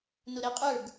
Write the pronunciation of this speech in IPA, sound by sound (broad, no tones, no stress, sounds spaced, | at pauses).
n ʊ ɾ ɛ qʼ ə˞ ɡ